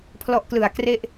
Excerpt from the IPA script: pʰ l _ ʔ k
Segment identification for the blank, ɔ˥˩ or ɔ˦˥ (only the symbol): ɔ˦˥